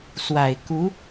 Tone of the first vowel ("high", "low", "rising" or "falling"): low